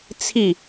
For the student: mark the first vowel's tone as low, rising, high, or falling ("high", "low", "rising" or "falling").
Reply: falling